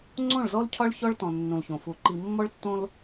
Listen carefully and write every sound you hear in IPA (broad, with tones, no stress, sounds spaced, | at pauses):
ŋ͡ǀ õ˦˨ ɭ z ɔ˦ l cʰ ɒ˦ ɭ ç ɔ˦ ɭ t ɔ̃˨ nː ũ˨ l ç õ˨ f u˨ ǃ i˨ mː ɔ˦ ɭ tː õ˦ l